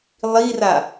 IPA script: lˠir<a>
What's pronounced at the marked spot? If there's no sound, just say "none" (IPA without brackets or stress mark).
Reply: a